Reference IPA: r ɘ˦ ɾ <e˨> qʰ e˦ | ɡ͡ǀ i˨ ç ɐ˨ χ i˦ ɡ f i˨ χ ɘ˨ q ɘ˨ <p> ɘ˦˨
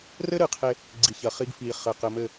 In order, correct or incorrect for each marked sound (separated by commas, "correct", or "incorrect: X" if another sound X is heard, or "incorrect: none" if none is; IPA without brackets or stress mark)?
incorrect: ɨ˨, incorrect: m